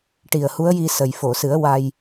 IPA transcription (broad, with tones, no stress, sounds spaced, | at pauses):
ʈ i˨˩ ə̯ h u˧˥ ə̯ j i˧ s ə˨˩ j f o˨˩˨ s ɨ˨˩˦ ə̯ w a˧ j